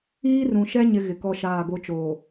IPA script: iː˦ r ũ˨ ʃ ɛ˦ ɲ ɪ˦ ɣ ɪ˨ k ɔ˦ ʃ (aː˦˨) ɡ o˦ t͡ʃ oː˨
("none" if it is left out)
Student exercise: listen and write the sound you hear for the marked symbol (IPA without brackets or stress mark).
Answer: aː˦˨